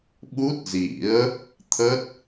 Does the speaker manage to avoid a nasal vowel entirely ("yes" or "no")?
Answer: yes